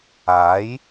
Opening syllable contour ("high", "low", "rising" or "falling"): rising